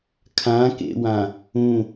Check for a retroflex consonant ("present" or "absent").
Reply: absent